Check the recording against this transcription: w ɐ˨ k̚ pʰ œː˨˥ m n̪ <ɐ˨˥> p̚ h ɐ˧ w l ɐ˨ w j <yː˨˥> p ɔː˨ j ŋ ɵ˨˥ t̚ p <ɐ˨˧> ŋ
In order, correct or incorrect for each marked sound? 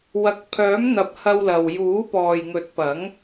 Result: correct, incorrect: uː˨˥, incorrect: ɐ˨˥

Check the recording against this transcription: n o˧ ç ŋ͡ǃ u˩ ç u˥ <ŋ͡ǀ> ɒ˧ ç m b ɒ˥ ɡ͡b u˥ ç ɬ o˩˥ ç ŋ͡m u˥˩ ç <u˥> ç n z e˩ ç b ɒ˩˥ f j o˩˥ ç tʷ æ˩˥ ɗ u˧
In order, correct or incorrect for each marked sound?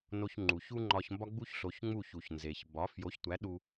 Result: incorrect: ŋ͡ǃ, incorrect: u˩

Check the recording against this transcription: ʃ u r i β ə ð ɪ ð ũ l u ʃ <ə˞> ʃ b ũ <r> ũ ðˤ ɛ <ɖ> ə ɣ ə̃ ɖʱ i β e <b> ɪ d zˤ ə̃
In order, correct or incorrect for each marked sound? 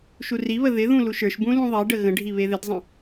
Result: correct, incorrect: l, correct, incorrect: ð

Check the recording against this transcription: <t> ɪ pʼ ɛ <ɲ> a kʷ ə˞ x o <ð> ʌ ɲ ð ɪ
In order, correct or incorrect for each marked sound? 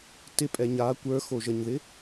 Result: correct, correct, incorrect: ʒ

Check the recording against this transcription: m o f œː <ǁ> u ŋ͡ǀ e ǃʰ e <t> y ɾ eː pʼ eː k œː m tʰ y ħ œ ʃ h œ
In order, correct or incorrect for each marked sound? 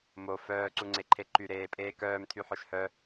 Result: incorrect: ǀ, incorrect: ǃ

